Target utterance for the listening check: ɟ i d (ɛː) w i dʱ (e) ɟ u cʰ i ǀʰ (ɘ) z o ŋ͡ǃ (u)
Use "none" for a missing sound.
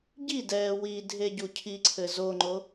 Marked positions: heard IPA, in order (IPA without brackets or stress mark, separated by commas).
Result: ɛː, e, ɘ, o